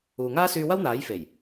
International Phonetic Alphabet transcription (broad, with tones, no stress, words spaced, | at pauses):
uː˨ŋaː˥syː˧ wɐ˥wn̪aː˨˥jfe˨˩j